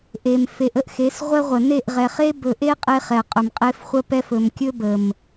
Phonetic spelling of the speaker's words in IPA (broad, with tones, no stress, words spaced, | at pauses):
ʔe˨m fe˨ʔə˦ʔ xe˨˦sʁʷɛ˦ʁʷə˨ ne˦˨ʔʁɛ˨χe˦ bɵ˨ʔe˦ qʼe˦χɛ˨qʼɵ˨mqʼe˦f χʷə˦pɛ˦f ɵ˨mkʲɵ˦ bə˨m